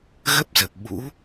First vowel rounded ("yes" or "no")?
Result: no